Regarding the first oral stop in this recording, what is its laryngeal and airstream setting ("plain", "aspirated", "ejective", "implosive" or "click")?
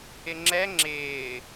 click